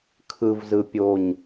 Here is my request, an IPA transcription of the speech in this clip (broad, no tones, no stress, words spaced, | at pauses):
kʰɯvzɯ pʲoɲ